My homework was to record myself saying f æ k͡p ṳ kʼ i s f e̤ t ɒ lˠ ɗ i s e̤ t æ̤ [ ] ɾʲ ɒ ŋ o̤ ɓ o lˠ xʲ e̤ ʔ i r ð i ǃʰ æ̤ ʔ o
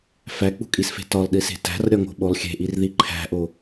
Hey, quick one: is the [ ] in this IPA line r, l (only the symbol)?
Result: r